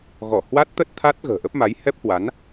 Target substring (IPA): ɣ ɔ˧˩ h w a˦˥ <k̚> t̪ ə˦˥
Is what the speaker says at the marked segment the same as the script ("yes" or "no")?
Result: no